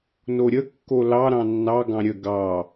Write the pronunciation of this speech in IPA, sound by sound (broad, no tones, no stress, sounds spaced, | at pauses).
n o ɾʲ ə kː o l ɑ ɾ ɑ̃ nː ɑ ɡ ɑ̃ ɾʲ ə ɡ ɑ